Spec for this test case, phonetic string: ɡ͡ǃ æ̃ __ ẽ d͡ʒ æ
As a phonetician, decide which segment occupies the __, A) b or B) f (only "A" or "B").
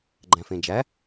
B